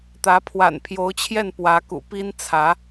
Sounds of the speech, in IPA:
t̪ ä˧˥ pʰ w a̰˨˩ n pʰ j o˧˥ ʊ̯ t͡ɕʰ j ɛ˥˩ n p w ä˧˥ k ṵ˨˩ p i˥ n t͡sʰ ä˧˥

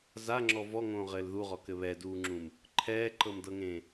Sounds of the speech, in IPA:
z a ŋ͡ǁ ɔ v ɔ ŋ õː ʁ ɘː l ð u ʁ ɔ k ɘ β ɛ d uː ŋ͡ǁ ũ m | ǃʰ ɛː ǃ ɤ m d ɤ ŋ ẽ

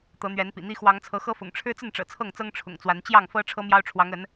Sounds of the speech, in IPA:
t̪ ɤ˨˦ n̪ ɥ ɛ˨˦ n p ḭ˨˩ n̪ i˦ x w ɑ˨˦ ŋ t͡sʰ ɤ˨˦ x ɤ˦ f ʊ̰˨˩ ŋ ʈ͡ʂʰ ɻ̩˦ t͡s ə˥˨ n ʈ͡ʂ ɤ̰˨˩ t͡sʰ ɤ˥˨ ŋ t͡s ɤ˦ ŋ ʈ͡ʂʰ ʊ̰˨˩ ŋ t͡s w a˨˦ n t͡ɕ j ɑ˥˨ ŋ f ɤ˦ ʈ͡ʂʰ ɤ˦ m j ɑ˦ ʊ̯ ʈ͡ʂʰ w ɑ˨˦ ŋ ə˨˦ n

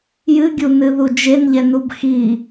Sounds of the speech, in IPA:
j ɨ ɡʲ u n ɨ ð u d͡ʒ e n ʎ ɛ n u b x i

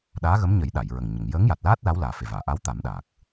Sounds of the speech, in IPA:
ɗ aː˧˥ ɣ ə˧˥ m ɲ ə˨˩˦ j ɗ a˨˩˨ j ɹ ə˨˩ ŋ ɲ ə˨˩˨ ŋ j əː˧˥ ŋ j a˨˩ t̚ l aː˦˥ t̚ l a˧˥ w l aː˨˩ f e˨˩ v aː˨˩˨ ʔ a˧˥ w t̪ a˨˩˦ m ɗ aː˨˩ k̚

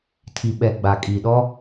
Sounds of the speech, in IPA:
tʰ i˨ ɓ ɛ˨ ɡ͡b a˨ kʼ i˨ ɗ ɔ˦

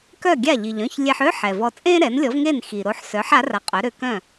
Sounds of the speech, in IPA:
k œ˥˩ ɡʲ a˥˩ ʎ i˩ ʎ œ̃˥˩ ç lʲ e˧ ħ ø˥ ħ ɛ˩ v ɔ˧ t͡sʼ ẽː˥ ɾ ɛ˩˥ n lʲ ɔ˩˥ v ŋ e˥˩ n x i˩ ɾ o˧ ħ s œ˩˥ ħ a˩˥ r a˧ qʼ œ˩˥ ɾ ø˧ k œ̃˥˩

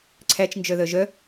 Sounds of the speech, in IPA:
ǀʰ æ t͡ʃ n d͡ʒ œ ð œ ʒ œ

